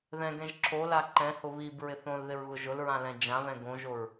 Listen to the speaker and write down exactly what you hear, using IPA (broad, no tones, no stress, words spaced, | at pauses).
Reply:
ðɛ̃ɡɛ̃ʒ ǁʰola ǃɛ̃hʊ βib ɹɪθõlðɪɹ ɣʊʒʊlɹã lɛ̃d͡ʒãβɛ̃ ɡõʒoɹ